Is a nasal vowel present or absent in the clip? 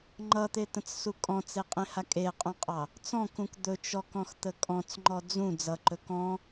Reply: present